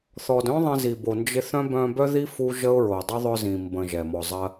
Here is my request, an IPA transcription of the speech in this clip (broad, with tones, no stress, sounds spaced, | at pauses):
θ ɔ˨ d œ̃˥ ðˤ ə̃˦ z i˨ b o˨ n d͡ʒ ɪ˦ θ œ̃˥ b œ̃˦ b œ˥ ð i˥ f u˥ ʒ ə˥ ʊ̯ ɹ o˨ dˤ œ˥ ðˤ œ˦ z ĩ˨ m b ə̃˨ ʒ ɛ˩ m ɔ˨ zˤ ɜ˦